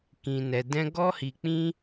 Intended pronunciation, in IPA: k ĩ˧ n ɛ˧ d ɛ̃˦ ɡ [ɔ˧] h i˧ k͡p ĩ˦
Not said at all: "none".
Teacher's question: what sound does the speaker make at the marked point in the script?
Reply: ɔ˦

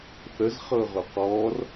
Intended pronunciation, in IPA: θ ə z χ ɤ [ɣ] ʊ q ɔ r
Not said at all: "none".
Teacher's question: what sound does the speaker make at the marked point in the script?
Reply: ʁ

